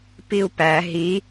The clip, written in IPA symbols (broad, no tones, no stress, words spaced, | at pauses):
piu̯pæ ɦi